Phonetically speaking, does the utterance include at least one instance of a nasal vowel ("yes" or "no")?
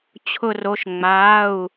no